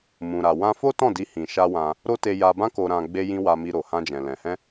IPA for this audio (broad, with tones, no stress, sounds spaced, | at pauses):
m ũ˨ ɾ a˨ w ã˧ f o˦ t ɔ̃˦˨ d i˧ h ĩ˨ ʃ a˧ w ã˧ | ɾ o˦ t e˧ j a˧ b ã˦ k o˧ ɾ ã˧ ɡ͡b e˧ j ĩ˧ w a˧ m i˧ ɾ o˨ h ã˧ d͡ʒ ɛ̃˨ l ɛ̃˨ h ɛ̃˧